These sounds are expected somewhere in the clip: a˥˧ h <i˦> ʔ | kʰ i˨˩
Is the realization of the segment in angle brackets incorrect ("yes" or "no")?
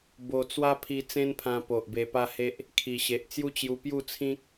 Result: yes